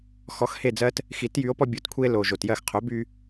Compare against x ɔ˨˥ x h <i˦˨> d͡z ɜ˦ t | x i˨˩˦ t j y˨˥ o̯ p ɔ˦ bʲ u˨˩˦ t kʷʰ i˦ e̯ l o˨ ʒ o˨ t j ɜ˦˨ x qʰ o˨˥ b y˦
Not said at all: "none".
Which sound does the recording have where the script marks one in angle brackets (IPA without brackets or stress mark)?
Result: e˦˨